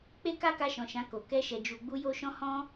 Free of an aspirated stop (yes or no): yes